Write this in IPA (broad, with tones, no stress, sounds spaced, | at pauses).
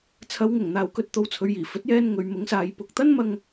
t͡sʰ ɐ˨˧ w ŋ ʊ˨˩ ŋ n̪ aː˨ w k ɵ˧ t̚ t̪ o˧ w t͡sʰ ɵ˨˧ ɥ j iː˨˩ f ɵ˨˥ t̚ j ɛː˧ n ŋ ɵ˨˧ ɥ m ʊ˨˥ ŋ s aː˨˧ j p ʊ˨ k̚ t̪ ɐ˥ n m ɐ˧ ŋ